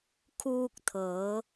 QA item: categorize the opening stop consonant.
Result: aspirated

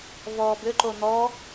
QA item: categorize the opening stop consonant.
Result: plain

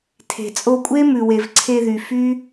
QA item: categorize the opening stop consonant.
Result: aspirated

